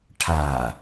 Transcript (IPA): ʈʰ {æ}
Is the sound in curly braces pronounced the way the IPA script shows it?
no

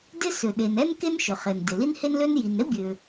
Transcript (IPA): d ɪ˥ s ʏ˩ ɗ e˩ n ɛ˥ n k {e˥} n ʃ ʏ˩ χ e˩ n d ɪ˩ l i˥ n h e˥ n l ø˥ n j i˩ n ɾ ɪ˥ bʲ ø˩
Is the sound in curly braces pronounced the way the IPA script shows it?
yes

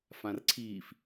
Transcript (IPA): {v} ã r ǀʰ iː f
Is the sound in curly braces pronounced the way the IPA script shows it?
no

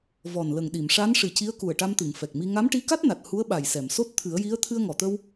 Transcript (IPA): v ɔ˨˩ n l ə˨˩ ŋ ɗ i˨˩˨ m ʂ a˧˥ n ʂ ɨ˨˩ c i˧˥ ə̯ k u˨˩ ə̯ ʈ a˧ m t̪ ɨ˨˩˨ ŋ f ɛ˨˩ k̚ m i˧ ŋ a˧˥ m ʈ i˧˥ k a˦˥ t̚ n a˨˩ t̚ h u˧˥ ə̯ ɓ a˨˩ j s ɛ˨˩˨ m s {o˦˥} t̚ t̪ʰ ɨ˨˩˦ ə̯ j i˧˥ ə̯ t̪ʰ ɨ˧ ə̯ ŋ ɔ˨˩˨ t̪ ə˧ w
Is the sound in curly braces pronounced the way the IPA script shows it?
yes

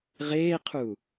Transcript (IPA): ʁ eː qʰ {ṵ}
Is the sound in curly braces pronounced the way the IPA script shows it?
no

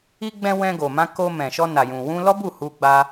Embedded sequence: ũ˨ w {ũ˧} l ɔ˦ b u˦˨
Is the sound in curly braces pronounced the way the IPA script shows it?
yes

